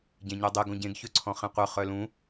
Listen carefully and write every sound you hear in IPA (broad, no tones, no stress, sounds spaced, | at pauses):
ɟ ẽ ɲ ø dˤ e ɡ õ ɟ ẽ ɡ ç ø ǀʰ ɔ̃ χ ẽ qʷ œ χ œ l ũ